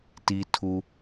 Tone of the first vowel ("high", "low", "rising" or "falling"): high